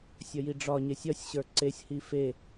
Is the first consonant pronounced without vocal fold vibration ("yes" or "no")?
yes